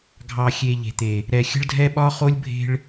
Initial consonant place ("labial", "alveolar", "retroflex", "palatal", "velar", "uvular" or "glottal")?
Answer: velar